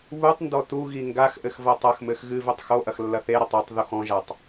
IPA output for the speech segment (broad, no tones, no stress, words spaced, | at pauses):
βutˤndɔ tuɣi ŋɡaxʔɘx vɐtˤɐxmɘx ɣɨvetˤ xoʔɐx lːɐθeɾɐtˤ ɔtˤ ðuxɔ̃ʒatˤ